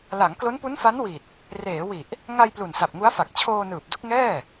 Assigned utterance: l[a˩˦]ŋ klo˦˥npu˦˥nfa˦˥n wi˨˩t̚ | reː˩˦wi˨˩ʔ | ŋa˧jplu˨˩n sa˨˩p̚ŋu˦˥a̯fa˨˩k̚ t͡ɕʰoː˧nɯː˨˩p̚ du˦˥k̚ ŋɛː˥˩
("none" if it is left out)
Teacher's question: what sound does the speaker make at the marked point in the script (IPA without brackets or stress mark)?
a˩˦